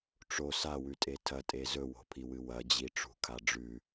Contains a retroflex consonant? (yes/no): yes